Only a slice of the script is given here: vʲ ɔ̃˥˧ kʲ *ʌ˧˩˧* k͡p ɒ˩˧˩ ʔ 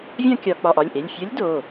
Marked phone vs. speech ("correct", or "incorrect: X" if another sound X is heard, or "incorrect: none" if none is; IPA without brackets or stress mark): incorrect: ɒ˧˩˧